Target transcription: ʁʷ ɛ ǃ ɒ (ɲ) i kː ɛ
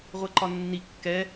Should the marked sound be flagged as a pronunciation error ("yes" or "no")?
yes